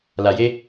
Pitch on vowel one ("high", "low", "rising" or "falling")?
low